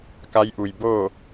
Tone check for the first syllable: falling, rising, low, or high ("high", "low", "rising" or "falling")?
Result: rising